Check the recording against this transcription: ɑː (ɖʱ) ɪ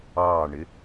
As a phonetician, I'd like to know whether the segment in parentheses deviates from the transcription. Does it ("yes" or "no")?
yes